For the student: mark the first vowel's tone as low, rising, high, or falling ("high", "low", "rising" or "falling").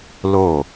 falling